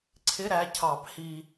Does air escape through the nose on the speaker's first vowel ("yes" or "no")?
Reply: no